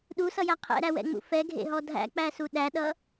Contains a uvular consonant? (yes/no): yes